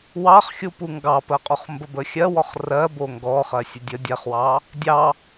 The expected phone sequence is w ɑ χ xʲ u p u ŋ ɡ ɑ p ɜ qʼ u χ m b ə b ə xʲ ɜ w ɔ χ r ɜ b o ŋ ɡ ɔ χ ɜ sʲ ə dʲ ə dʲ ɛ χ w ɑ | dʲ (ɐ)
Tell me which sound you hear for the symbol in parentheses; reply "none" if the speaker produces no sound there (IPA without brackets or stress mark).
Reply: ɑ